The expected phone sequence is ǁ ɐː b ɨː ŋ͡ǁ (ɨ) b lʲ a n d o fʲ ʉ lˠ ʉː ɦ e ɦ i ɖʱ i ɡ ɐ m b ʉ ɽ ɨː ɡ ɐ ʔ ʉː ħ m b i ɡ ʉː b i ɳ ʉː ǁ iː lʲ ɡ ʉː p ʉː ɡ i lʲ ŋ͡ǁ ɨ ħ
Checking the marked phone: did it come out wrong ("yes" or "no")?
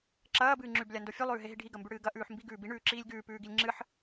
yes